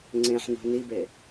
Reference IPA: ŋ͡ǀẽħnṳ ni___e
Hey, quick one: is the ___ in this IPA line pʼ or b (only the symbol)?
b